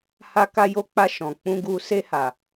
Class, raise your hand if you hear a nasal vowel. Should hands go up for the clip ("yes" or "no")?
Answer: yes